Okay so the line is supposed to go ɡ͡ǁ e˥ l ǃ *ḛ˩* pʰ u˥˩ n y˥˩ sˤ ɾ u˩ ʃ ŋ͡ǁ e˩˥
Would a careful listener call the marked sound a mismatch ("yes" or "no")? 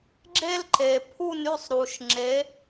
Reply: yes